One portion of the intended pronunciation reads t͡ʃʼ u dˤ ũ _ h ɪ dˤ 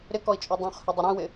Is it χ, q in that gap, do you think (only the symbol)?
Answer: χ